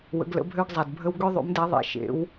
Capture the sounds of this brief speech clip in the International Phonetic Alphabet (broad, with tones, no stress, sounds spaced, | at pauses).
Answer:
w ə̰˧˥ ɡ l ə̰˧˥ bʱ ø˥ ɡ zˤ a˧ d bʱ ə˥ w ɡ ø˥ ðˤ ṵ˧˥ m d ɛ˧˥ ðˤ ḛ˧ ʃ ḛ˧˥ w